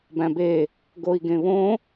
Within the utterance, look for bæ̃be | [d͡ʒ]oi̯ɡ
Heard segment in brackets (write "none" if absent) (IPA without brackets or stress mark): ɡ